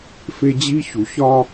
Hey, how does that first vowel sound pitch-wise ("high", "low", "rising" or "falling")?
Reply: high